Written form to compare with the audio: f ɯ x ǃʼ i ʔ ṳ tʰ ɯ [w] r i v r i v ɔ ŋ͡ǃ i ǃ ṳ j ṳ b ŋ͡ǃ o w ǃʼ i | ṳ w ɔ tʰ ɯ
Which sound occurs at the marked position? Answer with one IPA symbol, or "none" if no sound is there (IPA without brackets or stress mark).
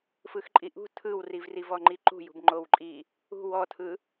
w